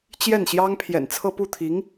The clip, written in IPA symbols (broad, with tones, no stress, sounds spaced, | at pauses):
t͡ɕ j ɛ˥˩ n ɕ j ɑ˥ ŋ pʰ j ɛ̰˨˩ n t͡sʰ ɤ˥˧ p u˥˩ t̪ʰ i˧˥ ŋ